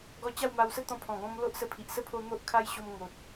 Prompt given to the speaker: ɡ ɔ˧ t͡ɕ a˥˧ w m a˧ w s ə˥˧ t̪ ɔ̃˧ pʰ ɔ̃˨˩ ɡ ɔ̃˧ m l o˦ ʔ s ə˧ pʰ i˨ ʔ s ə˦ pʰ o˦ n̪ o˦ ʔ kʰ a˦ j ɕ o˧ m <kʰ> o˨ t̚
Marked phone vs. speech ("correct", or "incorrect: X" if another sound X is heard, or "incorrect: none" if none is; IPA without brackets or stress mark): incorrect: ŋ